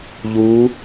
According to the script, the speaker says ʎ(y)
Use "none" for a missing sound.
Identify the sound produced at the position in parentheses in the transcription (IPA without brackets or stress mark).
u